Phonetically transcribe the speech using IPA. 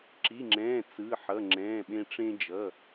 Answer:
ǁi˩˧˩ŋ͡ǁɛ̃ː˩˧˩ t͡sɯ˩˧˩ħʌ˩˧˩ŋ͡ǁɛ̃ː˩˧˩ɓẽ˧ ʈ͡ʂẽ˧d͡ʒʌ˩˧˩

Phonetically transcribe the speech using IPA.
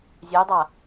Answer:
zʲøjdˤa

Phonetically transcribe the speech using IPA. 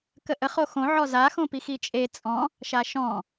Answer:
kəʔə χoxõ ʕɔza xõpixit͡ʃʼe t͡sʼɔ̃ | ʃaʃɔ̃

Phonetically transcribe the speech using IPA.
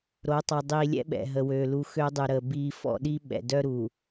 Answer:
ɾo˨˦tˤa˨dˤiː˨ lʲɛ̰˦ɓɛ̰˨ɦə˨wøː˨ lu˨ xø˦dˤy˨ɾəː˨ biː˨fɔ̰˦˨ɗi˦ ɓɛ̰˨ dœ˦ɾu˨

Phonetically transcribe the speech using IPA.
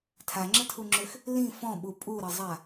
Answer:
tʰaŋ͡ǁətʰuŋ͡ǁøx | lĩ fɔ̃ɓu pʼuɾəzˤa

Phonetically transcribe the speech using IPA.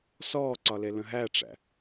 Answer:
sɔːǀɒle lə̃ɦæʈ͡ʂæ̰

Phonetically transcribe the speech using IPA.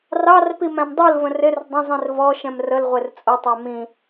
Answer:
rɑrpi mæ̃mdˤulvə̃r ɪr dˤə̃zˤĩr vɔ ʃɛ̃mrəlʁʷɪr t͡sʼʊtˤæ mĩ

